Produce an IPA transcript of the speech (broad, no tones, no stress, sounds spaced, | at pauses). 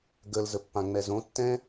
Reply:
ɡ ə l z ə pː ã ŋ͡m ɛ z õ tː ɛ̃